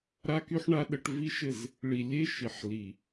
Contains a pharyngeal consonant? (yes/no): yes